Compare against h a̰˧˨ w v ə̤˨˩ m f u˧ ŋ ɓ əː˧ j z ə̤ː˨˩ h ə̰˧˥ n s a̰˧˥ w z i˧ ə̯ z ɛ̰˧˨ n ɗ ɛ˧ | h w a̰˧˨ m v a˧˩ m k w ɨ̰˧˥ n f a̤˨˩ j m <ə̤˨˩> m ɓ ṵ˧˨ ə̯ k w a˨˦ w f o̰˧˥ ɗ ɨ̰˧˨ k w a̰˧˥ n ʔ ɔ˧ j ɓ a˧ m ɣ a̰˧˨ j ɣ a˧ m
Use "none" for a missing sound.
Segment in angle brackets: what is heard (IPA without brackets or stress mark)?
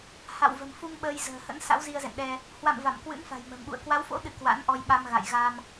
ə̤˨˩